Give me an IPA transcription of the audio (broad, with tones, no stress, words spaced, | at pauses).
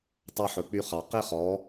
tˤɑ˦ħɵ˨k͡py˦χɑ˨ qi˦χɔ˨˦